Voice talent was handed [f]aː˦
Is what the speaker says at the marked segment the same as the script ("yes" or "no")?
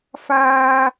yes